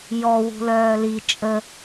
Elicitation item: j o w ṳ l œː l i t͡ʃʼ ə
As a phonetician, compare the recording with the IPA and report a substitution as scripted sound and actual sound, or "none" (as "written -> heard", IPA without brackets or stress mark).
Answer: o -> ɔ